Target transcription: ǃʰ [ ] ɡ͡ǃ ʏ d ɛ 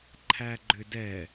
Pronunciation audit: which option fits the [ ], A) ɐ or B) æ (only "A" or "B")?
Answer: B